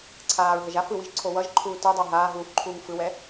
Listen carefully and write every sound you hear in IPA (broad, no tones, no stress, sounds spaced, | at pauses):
ǀʰ aː ɹ ɦ ʌ ʒ a f ɯ w i ʒ ǀʰ o w ʌ ʒ ǃʰ uː t ɯ dˤ ɛ ɦ aː ɦ uː f ǃʰ uː ŋ f ɯ w ɛ